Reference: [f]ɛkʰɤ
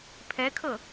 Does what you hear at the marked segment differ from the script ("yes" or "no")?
yes